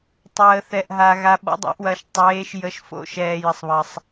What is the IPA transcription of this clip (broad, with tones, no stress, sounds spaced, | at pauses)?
tˤ əː˩ θ ɛ˩ ʔ ɦ a˩ ɣ a˩ ɓ ɔ̰˩˧ dˤ ɑ̰˩˧ ʔ w ɐː˩ ʃ tˤ eː˩˧ ʃ j ə˩˧ ʃ f o̰˩˧ ʃ ɛː˩ j ə˩ sˤ β ɐ˩ sˤ